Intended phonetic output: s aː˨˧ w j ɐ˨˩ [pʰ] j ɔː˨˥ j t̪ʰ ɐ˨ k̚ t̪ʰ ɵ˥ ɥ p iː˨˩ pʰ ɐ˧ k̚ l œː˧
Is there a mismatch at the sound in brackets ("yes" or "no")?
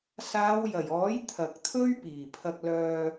yes